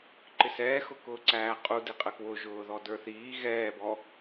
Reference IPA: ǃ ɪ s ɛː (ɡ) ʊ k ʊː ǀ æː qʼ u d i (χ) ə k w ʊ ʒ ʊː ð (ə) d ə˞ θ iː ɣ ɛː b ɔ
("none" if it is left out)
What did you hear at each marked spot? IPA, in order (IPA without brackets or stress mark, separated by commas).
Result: x, qʼ, ɔ